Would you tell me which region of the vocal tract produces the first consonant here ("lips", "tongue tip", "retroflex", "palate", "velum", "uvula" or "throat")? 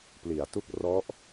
lips